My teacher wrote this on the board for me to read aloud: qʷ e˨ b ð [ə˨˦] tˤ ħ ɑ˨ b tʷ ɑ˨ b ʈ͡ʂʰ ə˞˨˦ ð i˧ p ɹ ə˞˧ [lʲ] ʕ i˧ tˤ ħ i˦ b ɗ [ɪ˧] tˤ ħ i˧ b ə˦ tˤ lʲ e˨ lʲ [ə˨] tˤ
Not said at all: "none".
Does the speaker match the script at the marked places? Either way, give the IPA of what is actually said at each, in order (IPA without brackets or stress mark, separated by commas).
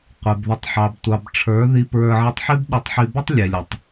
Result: ə˨˦, none, ɪ˧, ə˨